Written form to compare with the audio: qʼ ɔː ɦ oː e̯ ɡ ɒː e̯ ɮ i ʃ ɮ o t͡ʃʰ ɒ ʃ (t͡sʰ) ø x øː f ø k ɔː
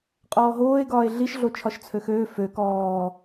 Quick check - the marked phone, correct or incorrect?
correct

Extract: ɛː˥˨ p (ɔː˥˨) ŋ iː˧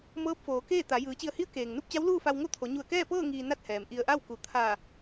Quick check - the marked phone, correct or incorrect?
incorrect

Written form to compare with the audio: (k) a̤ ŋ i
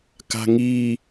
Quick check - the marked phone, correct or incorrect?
correct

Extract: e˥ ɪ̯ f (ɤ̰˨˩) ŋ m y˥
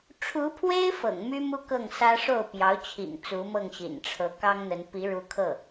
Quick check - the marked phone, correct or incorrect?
correct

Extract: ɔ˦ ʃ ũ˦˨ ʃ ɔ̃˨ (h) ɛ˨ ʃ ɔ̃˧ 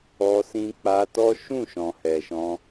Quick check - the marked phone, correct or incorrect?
correct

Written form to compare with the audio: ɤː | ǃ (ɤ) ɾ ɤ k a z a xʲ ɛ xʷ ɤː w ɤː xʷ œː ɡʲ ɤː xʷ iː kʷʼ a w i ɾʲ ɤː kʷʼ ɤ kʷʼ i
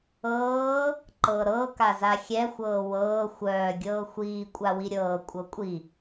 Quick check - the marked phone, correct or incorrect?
correct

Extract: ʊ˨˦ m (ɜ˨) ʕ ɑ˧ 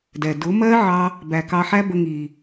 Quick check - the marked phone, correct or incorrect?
incorrect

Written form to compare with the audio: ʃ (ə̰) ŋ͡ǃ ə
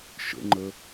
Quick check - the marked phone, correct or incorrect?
correct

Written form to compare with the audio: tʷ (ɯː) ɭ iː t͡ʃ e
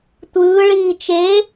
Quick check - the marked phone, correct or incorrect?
correct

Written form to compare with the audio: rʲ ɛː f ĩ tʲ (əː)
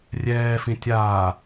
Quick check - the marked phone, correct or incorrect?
incorrect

